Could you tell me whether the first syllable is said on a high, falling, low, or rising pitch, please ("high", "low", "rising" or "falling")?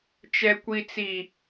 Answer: high